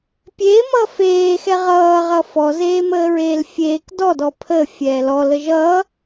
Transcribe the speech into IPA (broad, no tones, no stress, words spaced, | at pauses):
pʲeːmʌː feːxɛ ʁʌːʁʌ fɔzeːməːɹeːl fʲeːk dɔdɔ pʰəːfʲɛː lɔlə ʒʌː